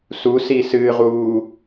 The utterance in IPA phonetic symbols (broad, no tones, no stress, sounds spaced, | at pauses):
s u s i s ɨː ʁ uː